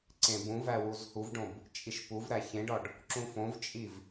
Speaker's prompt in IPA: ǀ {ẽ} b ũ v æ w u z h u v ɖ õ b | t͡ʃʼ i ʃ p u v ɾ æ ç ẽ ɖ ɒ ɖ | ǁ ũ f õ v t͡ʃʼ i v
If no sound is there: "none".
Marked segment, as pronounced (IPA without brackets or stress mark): ẽ